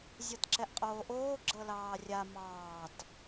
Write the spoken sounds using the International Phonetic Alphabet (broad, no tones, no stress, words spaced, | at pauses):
zʲɤtǁɛʔqʼoːʔoː ɡ͡ǁɤlɑːrʲa mɑːt